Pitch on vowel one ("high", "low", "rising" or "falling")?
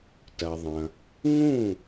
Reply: low